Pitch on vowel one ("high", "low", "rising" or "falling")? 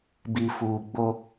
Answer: low